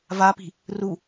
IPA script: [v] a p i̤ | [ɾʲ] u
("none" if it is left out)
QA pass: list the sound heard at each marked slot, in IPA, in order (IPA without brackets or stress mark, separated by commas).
v, r